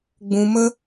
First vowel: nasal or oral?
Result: nasal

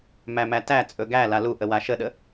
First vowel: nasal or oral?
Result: oral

